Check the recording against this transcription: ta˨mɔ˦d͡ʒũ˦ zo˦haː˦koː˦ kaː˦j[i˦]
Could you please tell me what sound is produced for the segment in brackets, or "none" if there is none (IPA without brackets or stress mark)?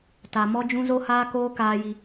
i˦